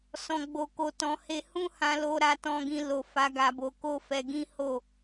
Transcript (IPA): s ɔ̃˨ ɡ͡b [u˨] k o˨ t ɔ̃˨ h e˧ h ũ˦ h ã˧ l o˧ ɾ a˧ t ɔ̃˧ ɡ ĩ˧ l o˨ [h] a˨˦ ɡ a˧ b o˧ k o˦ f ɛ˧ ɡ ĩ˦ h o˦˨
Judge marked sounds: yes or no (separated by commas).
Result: no, no